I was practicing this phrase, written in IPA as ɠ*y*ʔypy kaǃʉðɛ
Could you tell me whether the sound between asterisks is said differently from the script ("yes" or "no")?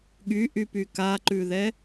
no